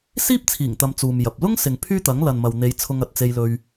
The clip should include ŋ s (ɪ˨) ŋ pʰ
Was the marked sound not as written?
no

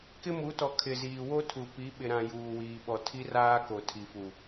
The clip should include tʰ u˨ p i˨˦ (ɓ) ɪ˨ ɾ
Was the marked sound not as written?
no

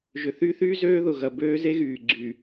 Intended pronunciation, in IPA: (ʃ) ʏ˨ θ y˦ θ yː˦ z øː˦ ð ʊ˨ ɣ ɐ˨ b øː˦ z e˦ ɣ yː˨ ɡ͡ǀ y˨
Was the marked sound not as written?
yes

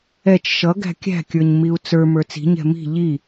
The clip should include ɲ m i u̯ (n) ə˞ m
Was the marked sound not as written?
yes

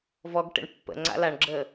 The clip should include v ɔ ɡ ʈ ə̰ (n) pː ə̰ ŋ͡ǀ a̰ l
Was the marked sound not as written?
yes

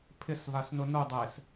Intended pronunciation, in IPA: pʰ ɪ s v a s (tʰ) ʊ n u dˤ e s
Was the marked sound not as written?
yes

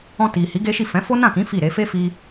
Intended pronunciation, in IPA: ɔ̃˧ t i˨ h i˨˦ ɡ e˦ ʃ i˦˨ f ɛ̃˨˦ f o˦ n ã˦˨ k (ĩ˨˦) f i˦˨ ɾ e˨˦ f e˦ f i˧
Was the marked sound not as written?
no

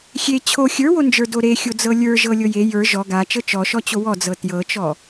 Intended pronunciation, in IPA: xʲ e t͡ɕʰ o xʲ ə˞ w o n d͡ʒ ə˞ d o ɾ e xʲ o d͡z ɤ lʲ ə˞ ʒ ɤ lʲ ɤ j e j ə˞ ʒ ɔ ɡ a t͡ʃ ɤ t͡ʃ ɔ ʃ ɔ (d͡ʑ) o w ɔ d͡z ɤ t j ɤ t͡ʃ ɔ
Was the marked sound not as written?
yes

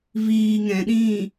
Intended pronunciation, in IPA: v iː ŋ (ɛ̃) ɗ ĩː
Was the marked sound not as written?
no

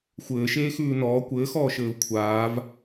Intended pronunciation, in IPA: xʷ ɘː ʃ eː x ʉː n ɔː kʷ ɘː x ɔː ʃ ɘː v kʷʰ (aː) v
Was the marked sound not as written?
no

